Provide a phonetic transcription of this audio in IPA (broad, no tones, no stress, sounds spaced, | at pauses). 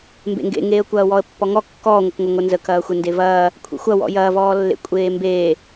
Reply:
m b ḛ ŋ ɡ ḛ ŋ eː ə̯ kʷ ɐː w ɔ ə̯ pː ɔ ŋ ɔ kː ɔː ŋʷ ə k ŋʷ ɐ ŋʷ ə n z ə k ɐː xʷ e n d e v ɐː | kʷʰ ḛ xʷ ɐ w ɔ̰ j ɐː v ɔː lː ḛ kʷʼ eː m b e